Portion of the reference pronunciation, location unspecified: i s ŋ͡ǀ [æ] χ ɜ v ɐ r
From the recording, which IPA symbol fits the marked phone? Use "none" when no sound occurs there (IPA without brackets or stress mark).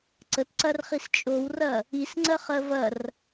ɜ